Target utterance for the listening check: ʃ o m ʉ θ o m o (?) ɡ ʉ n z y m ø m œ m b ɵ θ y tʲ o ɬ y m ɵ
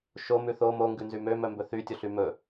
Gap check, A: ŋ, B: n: A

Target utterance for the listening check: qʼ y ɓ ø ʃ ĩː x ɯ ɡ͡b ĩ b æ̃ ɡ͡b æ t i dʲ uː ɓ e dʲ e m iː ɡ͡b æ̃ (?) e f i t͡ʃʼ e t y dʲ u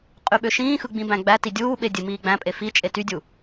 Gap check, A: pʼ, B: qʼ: A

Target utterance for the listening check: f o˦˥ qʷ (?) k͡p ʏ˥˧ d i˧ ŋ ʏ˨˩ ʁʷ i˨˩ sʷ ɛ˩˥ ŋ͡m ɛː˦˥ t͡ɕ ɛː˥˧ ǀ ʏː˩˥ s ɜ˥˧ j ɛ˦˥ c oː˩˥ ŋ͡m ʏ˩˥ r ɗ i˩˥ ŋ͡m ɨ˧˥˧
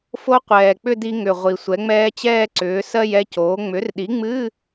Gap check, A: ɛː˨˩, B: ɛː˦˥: A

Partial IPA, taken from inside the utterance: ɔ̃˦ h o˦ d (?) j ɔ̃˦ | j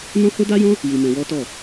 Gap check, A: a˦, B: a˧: A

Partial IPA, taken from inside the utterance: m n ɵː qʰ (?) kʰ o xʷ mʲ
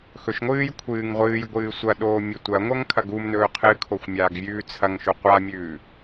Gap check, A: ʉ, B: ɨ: B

